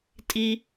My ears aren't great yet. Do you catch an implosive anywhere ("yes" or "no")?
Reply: no